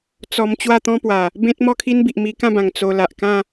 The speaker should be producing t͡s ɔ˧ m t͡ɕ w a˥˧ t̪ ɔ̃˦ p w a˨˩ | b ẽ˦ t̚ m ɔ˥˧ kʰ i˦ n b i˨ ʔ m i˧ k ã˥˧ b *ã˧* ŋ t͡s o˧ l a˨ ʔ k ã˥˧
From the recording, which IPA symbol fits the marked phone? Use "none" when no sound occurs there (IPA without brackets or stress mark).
ã˨˩